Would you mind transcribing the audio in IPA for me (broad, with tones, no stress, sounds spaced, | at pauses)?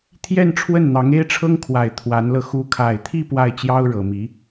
t̪ʰ j ɛ˥˧ n ʈ͡ʂʰ w ə˥˩ n n̪ ɑ˧˥ ŋ e˥ ɪ̯ ʈ͡ʂʰ ɤ˥ ŋ kʰ w a˨˩ ɪ̯ t̪ʰ w a˧˥ n l ɤ˧ x u˧˥ kʰ a˨˩ ɪ̯ t̪ʰ i˥˧ p w a˥˩ ɪ̯ t͡ɕ j ɑ˥ ʊ̯ ɻ ɤ˨˩ m i˧˥